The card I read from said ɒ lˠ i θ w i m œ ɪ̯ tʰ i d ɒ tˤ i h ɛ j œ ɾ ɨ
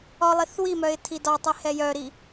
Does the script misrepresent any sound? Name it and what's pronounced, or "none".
ɨ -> i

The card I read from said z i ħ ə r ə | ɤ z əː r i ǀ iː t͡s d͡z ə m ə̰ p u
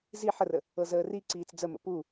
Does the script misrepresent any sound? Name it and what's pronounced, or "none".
none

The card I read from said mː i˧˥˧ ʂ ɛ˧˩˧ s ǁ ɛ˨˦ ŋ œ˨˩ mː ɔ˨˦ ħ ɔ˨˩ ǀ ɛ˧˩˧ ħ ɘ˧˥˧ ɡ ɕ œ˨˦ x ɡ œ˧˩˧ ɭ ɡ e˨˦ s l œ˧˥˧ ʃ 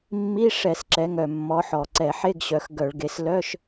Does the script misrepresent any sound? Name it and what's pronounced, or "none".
ɘ˧˥˧ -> e˧˥˧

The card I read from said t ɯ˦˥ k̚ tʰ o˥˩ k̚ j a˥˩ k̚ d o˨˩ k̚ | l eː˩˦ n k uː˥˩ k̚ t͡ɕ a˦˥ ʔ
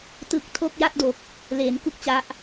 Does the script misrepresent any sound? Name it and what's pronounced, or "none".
uː˥˩ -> u˥˩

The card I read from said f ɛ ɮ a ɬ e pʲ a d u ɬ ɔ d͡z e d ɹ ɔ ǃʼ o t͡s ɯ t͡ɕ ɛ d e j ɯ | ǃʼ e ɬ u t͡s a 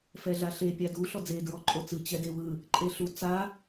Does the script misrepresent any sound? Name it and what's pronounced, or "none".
j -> w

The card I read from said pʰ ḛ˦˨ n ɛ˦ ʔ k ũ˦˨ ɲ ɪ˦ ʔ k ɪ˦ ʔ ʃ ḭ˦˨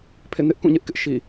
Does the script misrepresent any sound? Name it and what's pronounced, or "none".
ɛ˦ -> ɪ˦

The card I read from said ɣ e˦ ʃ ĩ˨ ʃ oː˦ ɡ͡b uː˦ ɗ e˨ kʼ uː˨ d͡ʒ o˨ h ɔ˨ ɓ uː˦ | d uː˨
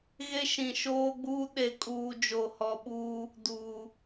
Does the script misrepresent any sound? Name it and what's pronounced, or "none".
none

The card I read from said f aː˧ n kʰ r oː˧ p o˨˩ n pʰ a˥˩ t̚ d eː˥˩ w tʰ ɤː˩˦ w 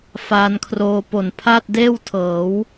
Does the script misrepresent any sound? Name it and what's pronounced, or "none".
none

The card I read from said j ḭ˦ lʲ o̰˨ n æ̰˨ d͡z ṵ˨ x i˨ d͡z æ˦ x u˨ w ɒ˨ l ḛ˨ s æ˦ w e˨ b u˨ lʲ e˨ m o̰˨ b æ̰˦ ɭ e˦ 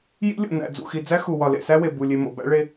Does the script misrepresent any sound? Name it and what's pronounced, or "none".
none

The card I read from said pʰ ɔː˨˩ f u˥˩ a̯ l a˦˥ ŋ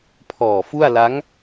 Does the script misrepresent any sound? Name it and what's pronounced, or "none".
none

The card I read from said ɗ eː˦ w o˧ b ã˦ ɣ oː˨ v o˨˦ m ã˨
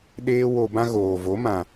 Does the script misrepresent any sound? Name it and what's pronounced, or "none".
none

